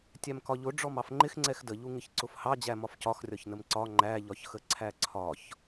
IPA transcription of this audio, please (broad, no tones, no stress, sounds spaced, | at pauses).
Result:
tʲ æ m k ɒ ʎ ʊ ɖ͡ʐ ɔ m ɑ f ŋ͡ǃ ɪ x ŋ͡ǀ ɛ x d ə ʎ u ŋ ɪ ç ǀ ʊ f h ɑ d͡ʑ æ m ɒ f c ɒ x rʲ ɒ ç n ə m ǀ ɒ ŋ͡ǃ æ ʎ ɒ ç x ə ǀʰ æ ǀʰ ɒ ç